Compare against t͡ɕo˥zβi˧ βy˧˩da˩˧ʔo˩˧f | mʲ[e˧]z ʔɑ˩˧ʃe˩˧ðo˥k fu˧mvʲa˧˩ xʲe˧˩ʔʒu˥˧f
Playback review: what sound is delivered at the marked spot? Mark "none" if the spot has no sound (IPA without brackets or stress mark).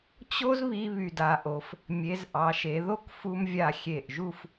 e˩˧